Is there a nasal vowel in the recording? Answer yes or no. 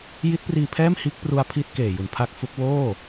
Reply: no